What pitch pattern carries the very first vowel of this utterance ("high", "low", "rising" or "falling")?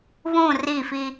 falling